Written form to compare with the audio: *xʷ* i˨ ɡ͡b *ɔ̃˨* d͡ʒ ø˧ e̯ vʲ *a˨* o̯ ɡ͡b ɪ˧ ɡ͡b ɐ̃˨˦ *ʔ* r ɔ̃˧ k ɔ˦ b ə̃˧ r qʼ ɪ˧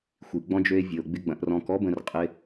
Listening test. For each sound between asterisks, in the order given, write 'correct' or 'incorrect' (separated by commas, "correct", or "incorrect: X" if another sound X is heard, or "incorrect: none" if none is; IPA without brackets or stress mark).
correct, incorrect: ɔ̃˧, incorrect: ə˨, correct